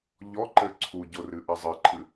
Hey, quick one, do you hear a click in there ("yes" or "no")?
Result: yes